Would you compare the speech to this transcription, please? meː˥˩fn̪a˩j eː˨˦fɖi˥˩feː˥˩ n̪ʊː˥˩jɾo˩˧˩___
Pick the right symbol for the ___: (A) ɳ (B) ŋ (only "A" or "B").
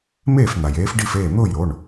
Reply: A